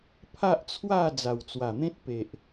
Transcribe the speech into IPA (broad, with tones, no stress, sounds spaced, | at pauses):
pʰ a˦ ʔ t͡sʰ w a˥˧ d͡z a˨˩ w t͡s w a˨˩ n̪ ẽ˦ t̚ p e˨ ʔ